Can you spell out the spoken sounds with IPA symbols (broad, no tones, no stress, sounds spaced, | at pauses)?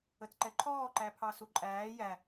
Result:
ə t ǃ ɛ ǃʰ ɔː ǃ æ pʰ ɑ s u ǃʼ æː j æ